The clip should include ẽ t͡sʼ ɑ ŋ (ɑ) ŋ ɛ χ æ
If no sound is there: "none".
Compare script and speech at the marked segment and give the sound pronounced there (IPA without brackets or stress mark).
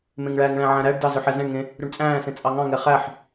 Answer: ɑ̃